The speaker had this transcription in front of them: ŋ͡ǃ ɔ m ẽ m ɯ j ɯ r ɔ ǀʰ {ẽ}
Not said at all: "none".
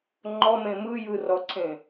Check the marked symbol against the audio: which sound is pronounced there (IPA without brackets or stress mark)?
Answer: ẽ